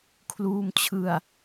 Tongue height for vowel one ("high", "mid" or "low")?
high